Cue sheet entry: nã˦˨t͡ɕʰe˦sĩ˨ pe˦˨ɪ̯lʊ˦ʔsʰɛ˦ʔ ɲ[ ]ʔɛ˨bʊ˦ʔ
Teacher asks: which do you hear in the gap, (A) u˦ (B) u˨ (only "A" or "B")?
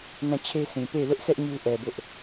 A